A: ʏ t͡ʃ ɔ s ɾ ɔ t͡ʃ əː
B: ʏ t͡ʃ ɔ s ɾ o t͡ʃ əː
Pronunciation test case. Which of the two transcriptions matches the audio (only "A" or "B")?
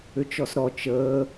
A